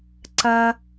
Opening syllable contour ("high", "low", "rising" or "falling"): high